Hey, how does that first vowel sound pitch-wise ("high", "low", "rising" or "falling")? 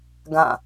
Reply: falling